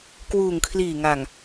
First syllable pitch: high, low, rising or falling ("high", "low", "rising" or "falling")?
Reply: low